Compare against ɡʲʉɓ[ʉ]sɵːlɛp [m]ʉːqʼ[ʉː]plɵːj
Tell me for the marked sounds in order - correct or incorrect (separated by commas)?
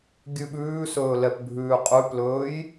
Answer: incorrect, incorrect, incorrect